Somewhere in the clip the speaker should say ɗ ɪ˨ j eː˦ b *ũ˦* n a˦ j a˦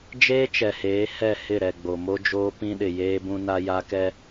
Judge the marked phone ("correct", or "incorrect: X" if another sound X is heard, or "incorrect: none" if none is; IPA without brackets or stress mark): correct